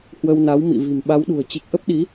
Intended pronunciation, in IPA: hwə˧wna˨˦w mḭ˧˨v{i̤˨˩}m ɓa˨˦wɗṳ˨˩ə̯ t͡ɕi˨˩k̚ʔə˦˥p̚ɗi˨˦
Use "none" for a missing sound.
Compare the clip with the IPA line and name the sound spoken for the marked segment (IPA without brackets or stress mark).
i̤˨˩